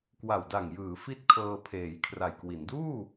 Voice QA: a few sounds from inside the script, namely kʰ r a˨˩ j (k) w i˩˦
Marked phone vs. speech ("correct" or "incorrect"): correct